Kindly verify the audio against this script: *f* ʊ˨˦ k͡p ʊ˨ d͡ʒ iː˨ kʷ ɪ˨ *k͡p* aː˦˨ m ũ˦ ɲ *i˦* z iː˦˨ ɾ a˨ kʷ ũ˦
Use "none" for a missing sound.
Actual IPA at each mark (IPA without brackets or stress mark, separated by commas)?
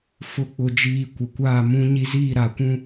f, kʷ, i˦